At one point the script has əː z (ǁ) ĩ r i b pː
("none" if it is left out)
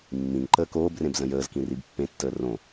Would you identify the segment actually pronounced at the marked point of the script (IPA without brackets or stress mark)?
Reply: k